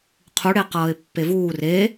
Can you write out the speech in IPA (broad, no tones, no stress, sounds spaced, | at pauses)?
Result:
qʰ u ɽ e q ʌː ɪ̯ pː e v uː r e